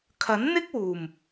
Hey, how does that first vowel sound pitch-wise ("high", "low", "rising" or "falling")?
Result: rising